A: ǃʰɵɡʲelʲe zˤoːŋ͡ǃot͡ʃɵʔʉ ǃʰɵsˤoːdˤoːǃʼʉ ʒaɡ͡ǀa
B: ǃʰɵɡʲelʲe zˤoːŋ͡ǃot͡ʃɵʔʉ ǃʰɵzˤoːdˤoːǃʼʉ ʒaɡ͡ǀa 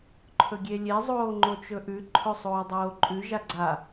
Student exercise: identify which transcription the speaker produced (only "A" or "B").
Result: A